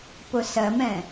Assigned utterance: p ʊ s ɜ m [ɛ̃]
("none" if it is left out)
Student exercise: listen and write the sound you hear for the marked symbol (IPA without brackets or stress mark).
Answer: ɛ̃